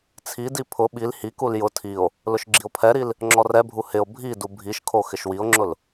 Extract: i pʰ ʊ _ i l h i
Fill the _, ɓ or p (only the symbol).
ɓ